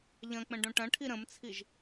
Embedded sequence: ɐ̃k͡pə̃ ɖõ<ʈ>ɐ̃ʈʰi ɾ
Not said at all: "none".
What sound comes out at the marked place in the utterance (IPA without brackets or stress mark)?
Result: ʈ